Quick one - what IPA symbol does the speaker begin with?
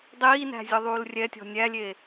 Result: dˤ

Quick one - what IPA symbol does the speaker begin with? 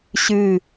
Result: ɕ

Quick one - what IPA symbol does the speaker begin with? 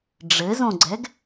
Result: ɖ͡ʐ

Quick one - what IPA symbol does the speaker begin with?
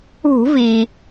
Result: ṳ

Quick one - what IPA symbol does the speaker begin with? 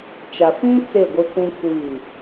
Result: t͡ʃ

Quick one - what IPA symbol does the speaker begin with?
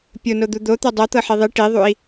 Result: pʲ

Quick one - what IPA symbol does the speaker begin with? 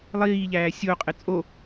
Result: lˠ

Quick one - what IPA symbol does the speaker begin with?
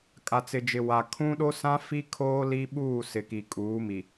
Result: kʼ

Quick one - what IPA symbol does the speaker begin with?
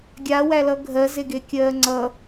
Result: ɡʲ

